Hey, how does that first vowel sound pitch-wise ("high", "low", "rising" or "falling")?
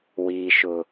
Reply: low